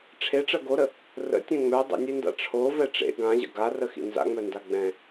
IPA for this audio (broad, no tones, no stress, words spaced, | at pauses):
ʈ͡ʂʰeʈ͡ʂɜ ɡoɾə | rə̰tʲɛ̃ ŋ͡mœ dˤə̰nʲenda̰ ʈ͡ʂʰovɛ ʈ͡ʂḛ ɡãʑə̰ ɡarəxḭ nza̰ŋ͡mœnda ɡ͡bɛ̃